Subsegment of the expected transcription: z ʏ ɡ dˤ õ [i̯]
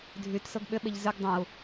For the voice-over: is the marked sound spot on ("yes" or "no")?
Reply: no